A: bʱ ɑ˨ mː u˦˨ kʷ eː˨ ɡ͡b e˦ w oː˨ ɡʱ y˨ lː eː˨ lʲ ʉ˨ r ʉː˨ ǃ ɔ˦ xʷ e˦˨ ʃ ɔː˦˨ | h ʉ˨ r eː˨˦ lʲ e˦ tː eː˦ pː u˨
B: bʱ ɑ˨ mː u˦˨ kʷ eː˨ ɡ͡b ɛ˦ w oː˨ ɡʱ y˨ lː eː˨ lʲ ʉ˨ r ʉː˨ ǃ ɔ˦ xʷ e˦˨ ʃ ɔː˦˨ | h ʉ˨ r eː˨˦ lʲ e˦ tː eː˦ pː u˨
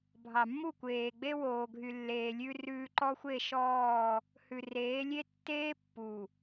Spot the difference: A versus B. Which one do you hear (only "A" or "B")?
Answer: A